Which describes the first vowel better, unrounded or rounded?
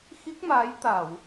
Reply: unrounded